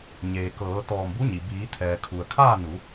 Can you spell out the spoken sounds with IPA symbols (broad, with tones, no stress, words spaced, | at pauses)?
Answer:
ɲeː˩ kɤː˩˧t̪ɔː˧˩mbu˧˥ɲi˩ biː˩˧t̪ʰɛː˩kʰu˩ə̯ kʰaː˥˨nu˩˧